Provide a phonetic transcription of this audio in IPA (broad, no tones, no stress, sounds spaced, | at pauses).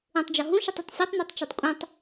ũ tˤ d͡ʒ ɔ ɦ ũ ʃ ɯ tˤ e tˤ sʲ ɔ tˤ n̪ e tˤ t͡ʃ i tˤ kʷʼ ĩ tˤ